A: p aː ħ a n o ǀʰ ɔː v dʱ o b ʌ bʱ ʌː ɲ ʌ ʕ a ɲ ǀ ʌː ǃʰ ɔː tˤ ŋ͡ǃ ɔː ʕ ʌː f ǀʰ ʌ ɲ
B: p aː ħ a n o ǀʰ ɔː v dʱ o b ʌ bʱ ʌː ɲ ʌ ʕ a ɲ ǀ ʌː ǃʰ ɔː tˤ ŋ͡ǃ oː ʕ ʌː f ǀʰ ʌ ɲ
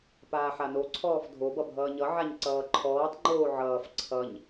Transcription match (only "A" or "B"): B